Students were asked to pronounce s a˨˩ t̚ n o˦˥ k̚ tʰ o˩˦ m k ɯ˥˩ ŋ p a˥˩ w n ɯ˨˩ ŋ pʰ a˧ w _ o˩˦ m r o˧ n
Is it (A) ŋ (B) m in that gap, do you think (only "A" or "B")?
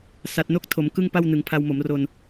B